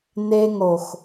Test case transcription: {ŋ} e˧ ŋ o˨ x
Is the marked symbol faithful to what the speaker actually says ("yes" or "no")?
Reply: no